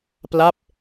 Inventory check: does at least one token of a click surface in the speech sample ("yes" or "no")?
no